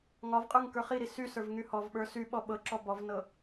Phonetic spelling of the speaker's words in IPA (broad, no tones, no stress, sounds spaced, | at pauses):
ŋ ɒ v qʼ ə˞ ŋ k ə˞ χ i ɾ i s y s ə˞ v ŋ y h ɔ v ɓ ə˞ s y ɓ ɔ ɓ ɤ ǁ ɔ b ɔ v n ɤ